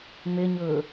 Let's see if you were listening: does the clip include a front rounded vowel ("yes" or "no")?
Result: yes